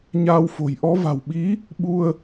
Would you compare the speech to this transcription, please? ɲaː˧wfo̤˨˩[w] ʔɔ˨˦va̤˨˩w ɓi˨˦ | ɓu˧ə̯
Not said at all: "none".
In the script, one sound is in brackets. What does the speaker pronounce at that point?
j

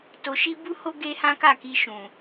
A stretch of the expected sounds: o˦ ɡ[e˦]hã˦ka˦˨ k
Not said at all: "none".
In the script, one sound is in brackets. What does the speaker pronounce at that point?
e˦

